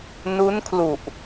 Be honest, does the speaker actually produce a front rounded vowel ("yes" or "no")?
no